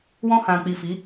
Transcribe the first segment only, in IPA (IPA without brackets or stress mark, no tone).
w